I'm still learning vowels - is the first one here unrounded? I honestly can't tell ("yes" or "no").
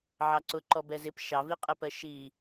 yes